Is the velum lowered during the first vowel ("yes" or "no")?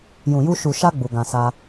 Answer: yes